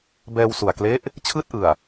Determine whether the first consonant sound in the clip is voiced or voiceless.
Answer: voiced